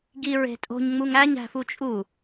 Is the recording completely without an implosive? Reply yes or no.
yes